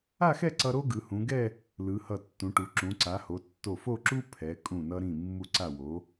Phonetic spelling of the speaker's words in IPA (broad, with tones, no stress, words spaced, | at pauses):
a˥˧xɛ˥˧ǀʌ˧ ɾo˥ɡɯ˩˧hũ˩˧ɡɛ˥˧ | lɯ˩˧hʌ˧˩tːũ˩˧ʈu˩˧ ǁũ˩˧ǀa˩˧ho˩˧ tːo˧˩fo˥˧ǁu˥ pʰɛ˩˧ kʼũ˧˩nʌ˧ ɾĩ˧˩ mːu˧˩ǀa˧˩ wo˩˧